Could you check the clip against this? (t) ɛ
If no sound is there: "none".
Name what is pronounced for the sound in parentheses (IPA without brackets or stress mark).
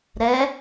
ɾ